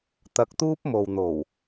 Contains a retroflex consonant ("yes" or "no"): no